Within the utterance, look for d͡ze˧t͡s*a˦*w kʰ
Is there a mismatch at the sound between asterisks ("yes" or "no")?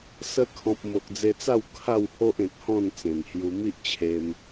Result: yes